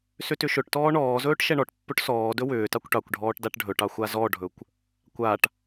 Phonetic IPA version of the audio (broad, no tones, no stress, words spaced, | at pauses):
sʏtʏʃɵʈtɔː ɳɔːzɵːʈ ʃɛɳɔʈpːɵʈ sɔːdɵ wʏːtɑkʷ ʈɑkʷɖʱɔːʈ daʈɖʱɵʈɑ xʷazɔɖʱɵkʷ | kʷaʈ